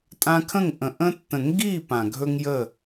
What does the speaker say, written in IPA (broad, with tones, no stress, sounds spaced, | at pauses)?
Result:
tʼ ã˧ kʰ ə̃˦˨ ŋ ʔ ə̃˨ ʔ ə̃˦ tː ə̃˨ ŋ ɡ i˦˨ p ã˨ ɡʱ ɵ˦ ŋ j ə˦˨